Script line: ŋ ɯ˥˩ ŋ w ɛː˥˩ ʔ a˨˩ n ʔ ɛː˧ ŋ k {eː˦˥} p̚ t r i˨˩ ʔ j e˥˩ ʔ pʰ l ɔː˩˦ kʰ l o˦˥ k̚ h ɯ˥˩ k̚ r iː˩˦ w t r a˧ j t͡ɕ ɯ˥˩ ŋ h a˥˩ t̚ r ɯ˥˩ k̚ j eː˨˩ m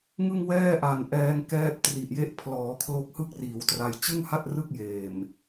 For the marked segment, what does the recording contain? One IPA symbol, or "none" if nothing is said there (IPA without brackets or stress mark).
ɛː˦˥